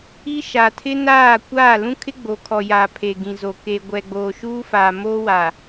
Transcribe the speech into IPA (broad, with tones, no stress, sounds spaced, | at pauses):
i˦ ʃ a˨ tʰ ɪ˦ n aː˦˨ kʷ aː˦˨ l ũ˦ kʰ ɪ˦ ɡ͡b o˨ kʰ ɔ˨ j aː˨ pʰ e˨ ɡ ĩ˨ z o˨ k e˨ ɡʷ ɛ˨ ɡ͡b oː˨ ʃ uː˦ f aː˨ m oː˦ w a˨